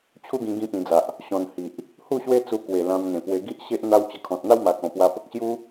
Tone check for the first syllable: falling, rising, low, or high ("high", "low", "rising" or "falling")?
high